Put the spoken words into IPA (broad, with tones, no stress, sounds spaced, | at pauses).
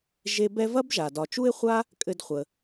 ʒ e˦ b ɛ˥ v ɐ˥ b ʒ a˩ d ɒ˨ t͡ʃ u˥ ɪ̯ χʷ a˥ | kʼ ɘ˦ d χʷ ə˨